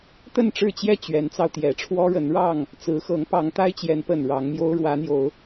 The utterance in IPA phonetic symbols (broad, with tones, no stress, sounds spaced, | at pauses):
t̪ ə˥˨ n ʈ͡ʂ ɻ̩˥˨ t͡ɕ j ɛ˥˨ t͡ɕ ɥ ɛ˨˦ n t͡s ɑ˧ ʊ̯ t̪ j ɛ˨˦ ʈ͡ʂʰ w ɔ˦ ɻ ə˨˦ n ɻ ɑ˥˨ ŋ | t͡s ɹ̩˨˦ x ɤ˨˦ ŋ p ɑ˨˦ ŋ t̪ a˦ ɪ̯ t͡ɕ j ɛ˨˦ n p ə˨˩ n ɻ ɑ˨˦ ŋ m j o˦ ʊ̯ ɻ w ä˨˦ n̪ j o˨˦ ʊ̯